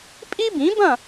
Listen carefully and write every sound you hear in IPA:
pʼ i˥ b ĩ˩˥ b ɐ̃˥˩

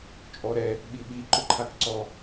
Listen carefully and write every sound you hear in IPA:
t͡ʃʼ ɔ ɾ ɛ | ɓ i ɓ i ǃ ʊ ǃʰ a k ǀ ɔ

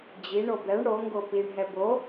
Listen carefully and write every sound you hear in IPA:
d͡ʑ i ɳ o b ɛ ɳ ɽ o ŋ ɡ o p i ɳ ɦ ɛ b o

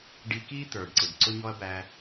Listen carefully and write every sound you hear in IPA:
ɖ i˧ k i˥ t̪ ə˞˩ ɖ ǀ ɪ˩ b ǀ ʊ˥ ɲ ɔ˥ ɐ̯ b æ˧

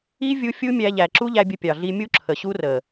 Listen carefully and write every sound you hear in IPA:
i˦ vʲ u˧ fʲ u˦ mʲ æ˧ ʎ æ˨ ǁ u˦ ʎ æ˧ bʲ ə˧ pʲ ɑ˨ ɮ i˧ mʲ u˦ ǁʰ ə˨ ɕ u˦ r ə˨

